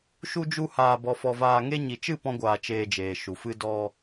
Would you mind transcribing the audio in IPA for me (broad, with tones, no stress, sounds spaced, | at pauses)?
ʃ u˦ d͡ʒ u˦ h aː˧ b ɔ˧ f ɔ˧ v aː˧ ŋ e˦ ɲ i˨ t͡ʃ ɨ˦˨ p ɔ̃˦ ɡʷ aː˧ t͡ʃ eː˧ d͡ʒ eː˨ ʃ u˨ f ɨ˦ d ɔ˦